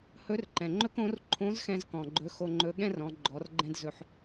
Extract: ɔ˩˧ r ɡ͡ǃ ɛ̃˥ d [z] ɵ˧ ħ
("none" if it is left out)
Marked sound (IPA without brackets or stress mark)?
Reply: z